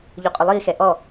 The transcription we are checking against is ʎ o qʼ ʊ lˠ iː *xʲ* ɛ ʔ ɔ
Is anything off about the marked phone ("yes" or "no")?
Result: yes